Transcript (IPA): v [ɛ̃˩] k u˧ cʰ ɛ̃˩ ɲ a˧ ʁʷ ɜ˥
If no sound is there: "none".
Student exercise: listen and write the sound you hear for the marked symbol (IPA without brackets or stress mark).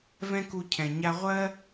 ɛ̃˥